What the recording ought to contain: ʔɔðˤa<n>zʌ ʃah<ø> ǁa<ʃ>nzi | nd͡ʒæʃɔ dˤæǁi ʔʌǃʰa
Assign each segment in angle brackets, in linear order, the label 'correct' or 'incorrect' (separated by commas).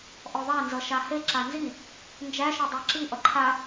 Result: correct, incorrect, incorrect